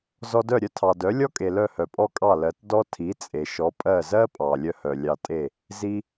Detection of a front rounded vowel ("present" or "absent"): present